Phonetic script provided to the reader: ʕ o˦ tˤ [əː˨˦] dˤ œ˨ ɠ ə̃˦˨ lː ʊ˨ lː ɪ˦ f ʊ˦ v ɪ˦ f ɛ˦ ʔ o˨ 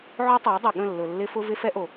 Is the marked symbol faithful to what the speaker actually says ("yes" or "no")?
yes